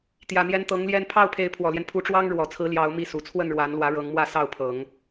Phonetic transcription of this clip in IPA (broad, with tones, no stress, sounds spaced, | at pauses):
t̪ j ä˨˩ n̪ j ɛ˧˥ n t̪ ɤ˧˥ ŋ l j ɛ˥˧ n pʰ ɑ˥˩ ʊ̯ pʰ e˧˥ ɪ̯ pʰ w ɔ˨˩ l j ɛ˦ n pʰ u˧˥ ʈ͡ʂ w ɑ˥ ŋ ɻ w ɔ˨˩ t͡sʰ ɹ̩˧˥ l j ɑ˧˥ ʊ̯ m i˥˩ s u˨˩ t͡sʰ w ə˥˩ n ɻ w a˧˥ n l w ä˧˥ ɻ ɤ˧˥ ŋ m w ä˥˧ s ɑ˥˩ ʊ̯ pʰ ɤ˨˩˦ ŋ